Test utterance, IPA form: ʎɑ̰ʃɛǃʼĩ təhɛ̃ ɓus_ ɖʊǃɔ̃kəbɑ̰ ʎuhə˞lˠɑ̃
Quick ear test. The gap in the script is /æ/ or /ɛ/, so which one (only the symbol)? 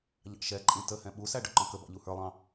æ